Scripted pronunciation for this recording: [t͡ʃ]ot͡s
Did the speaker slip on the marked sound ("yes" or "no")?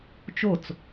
no